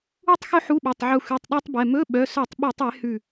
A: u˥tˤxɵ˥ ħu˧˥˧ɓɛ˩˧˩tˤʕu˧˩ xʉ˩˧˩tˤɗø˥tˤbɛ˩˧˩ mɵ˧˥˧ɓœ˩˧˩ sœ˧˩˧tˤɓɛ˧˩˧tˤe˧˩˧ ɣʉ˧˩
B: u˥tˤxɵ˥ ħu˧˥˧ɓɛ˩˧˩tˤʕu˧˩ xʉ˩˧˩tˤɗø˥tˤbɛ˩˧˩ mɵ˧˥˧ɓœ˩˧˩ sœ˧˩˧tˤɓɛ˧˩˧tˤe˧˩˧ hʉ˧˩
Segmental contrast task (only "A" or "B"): B